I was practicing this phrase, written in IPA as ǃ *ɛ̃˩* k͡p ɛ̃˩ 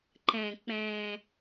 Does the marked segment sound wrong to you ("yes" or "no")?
no